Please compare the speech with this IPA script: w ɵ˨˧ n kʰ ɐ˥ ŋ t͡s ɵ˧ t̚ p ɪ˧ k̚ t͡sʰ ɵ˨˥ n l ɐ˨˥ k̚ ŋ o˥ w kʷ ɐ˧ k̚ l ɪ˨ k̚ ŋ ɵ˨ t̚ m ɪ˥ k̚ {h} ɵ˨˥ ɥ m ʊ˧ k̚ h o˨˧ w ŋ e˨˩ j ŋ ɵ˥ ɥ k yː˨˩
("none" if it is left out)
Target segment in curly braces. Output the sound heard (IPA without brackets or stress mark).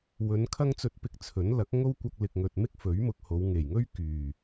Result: f